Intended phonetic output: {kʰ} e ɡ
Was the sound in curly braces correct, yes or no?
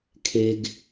yes